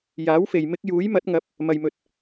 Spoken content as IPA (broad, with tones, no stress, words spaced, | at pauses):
jaː˨˥wfe˨j mɪ˧k̚ juː˨˥jmɐ˨˥t̚ ŋɐ˨˥p̚ | mɐ˨jmɵ˨t̚